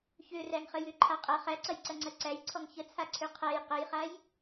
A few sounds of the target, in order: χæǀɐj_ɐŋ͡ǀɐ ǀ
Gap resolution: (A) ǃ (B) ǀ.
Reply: B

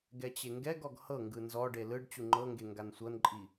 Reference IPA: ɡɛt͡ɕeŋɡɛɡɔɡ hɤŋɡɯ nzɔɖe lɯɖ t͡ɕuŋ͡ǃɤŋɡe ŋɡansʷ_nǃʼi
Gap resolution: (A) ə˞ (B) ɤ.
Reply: B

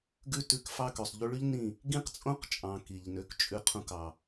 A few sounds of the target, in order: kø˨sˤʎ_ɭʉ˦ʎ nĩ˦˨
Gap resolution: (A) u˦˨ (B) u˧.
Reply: B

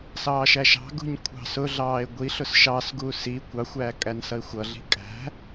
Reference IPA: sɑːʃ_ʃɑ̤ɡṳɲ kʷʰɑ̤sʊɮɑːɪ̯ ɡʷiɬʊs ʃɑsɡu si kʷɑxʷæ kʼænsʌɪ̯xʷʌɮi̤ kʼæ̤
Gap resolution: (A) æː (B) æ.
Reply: B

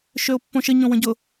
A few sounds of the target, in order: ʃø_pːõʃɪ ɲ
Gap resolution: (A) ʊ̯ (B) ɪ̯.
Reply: A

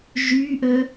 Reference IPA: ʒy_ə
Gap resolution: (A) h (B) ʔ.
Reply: B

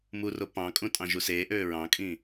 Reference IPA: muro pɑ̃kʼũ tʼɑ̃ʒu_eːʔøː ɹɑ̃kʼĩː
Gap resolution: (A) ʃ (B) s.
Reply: B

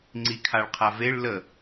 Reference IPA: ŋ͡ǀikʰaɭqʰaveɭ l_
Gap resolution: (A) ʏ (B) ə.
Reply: B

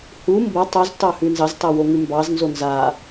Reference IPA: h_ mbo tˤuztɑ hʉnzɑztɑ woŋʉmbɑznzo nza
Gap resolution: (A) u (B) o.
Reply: A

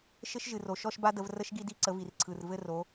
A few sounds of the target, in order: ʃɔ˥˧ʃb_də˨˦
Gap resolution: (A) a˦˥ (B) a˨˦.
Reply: A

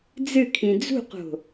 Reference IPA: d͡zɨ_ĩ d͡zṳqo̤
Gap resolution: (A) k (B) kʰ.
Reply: B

